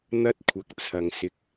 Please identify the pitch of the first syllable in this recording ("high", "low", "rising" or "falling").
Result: high